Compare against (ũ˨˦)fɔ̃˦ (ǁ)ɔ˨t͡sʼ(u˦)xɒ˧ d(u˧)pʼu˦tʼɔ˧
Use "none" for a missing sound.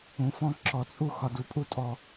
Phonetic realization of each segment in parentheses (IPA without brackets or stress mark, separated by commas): ũ˨˦, ǁ, u˦, u˨